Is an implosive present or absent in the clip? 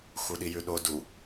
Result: present